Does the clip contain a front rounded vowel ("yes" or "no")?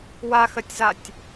no